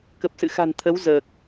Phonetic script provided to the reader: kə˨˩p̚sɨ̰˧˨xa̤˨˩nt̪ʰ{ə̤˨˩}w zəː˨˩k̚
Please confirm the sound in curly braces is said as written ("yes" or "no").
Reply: no